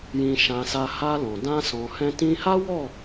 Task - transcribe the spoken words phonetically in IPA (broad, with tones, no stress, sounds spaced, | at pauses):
j ĩ˧ ʃ ã˧ s a˧ h a˧ l ɔ̃˨ d ã˧ s ɔ̃˨ h ɛ̃˧ t ĩ˧ h a˦ w ɔ˦˨